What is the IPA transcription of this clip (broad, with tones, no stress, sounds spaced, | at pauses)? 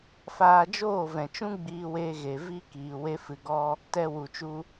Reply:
f aː˧ d͡ʒ oː˦˨ v ɛ̃˨ t͡ʃ ũ˦ ɡ͡b iː˧ w eː˧ ɣ e˨ v i˦ k iː˨ w e˦ f ɨ˧ ɡ ɔ˦ | t ɛ˧ w u˨ t͡ʃ u˧